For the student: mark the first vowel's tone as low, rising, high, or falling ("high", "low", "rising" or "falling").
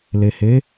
low